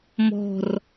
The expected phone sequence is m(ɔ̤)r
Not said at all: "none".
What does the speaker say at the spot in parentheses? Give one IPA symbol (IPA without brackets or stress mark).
ɔ̤